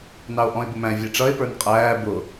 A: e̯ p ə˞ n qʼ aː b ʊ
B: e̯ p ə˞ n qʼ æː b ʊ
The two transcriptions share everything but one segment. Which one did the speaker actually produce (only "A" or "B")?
B